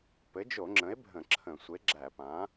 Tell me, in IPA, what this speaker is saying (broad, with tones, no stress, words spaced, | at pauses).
pɘ˩˥d͡ʒo˧˩˧ŋ͡ǁə̃˩˥e̯ bʱə̃˧˩˧ǁʰə̃˧˩˧ sʷe˩˥ɡ͡ǁæ˧˩˧pã˩˥